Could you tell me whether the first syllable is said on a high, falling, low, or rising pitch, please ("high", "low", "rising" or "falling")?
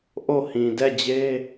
falling